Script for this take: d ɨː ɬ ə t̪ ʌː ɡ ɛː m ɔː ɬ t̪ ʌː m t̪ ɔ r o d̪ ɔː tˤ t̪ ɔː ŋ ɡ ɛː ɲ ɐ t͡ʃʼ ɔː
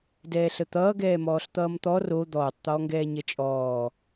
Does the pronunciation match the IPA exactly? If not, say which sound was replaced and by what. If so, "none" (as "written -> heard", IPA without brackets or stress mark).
ɨː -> ɛː